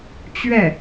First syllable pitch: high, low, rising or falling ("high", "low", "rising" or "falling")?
falling